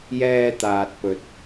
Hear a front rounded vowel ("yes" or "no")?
no